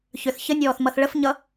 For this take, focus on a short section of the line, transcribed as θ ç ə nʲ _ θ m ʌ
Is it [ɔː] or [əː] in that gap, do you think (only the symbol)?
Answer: ɔː